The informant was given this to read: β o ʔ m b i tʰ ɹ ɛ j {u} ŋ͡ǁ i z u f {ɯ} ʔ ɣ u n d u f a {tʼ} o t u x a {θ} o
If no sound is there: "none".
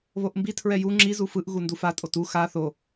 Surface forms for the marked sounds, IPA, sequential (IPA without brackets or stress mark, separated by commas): u, ɯ, tʼ, θ